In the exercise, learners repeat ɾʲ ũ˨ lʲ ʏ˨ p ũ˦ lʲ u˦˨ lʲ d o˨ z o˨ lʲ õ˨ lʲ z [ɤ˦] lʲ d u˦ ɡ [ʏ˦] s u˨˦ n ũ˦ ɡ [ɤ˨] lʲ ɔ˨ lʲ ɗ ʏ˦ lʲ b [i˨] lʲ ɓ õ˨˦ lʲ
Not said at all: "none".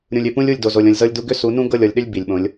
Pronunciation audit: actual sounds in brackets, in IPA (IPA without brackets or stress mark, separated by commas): ɤ˦, ʏ˦, ɤ˦˨, i˨